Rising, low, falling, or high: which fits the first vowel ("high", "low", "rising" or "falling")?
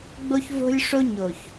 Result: high